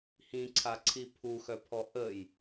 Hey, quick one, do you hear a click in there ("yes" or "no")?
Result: yes